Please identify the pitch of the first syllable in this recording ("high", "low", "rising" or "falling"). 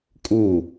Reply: falling